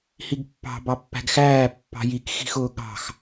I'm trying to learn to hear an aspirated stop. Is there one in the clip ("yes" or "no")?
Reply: no